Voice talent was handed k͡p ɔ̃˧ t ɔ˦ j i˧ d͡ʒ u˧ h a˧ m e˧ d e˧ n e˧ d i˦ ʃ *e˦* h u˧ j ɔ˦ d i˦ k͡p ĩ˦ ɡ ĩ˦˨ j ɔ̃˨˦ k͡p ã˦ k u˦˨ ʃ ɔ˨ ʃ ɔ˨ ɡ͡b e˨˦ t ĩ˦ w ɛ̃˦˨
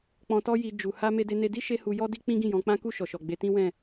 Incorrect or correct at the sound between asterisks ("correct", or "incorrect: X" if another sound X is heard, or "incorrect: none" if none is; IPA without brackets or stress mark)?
correct